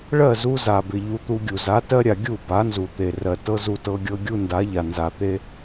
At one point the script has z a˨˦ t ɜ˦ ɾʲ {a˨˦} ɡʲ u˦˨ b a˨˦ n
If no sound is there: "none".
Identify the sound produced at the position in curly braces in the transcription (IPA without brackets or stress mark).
a˨